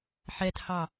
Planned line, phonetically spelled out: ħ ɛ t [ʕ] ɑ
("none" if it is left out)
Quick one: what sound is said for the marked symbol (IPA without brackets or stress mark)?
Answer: h